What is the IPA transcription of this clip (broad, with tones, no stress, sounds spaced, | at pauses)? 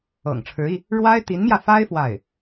ɤ̰˨˩ ŋ ʈ͡ʂʰ ɻ̩˧˥ i˧ | ɻ w a˥ ɪ̯ t̪ i˧˥ n m j ä˧ f a˥ ɪ̯ f w a˥˩ ɪ̯